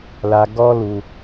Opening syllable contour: high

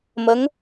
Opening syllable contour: rising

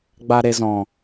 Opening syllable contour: low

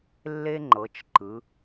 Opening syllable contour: high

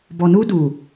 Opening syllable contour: low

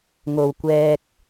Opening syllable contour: low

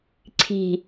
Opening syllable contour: low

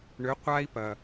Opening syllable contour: rising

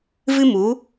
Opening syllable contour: high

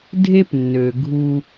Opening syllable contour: high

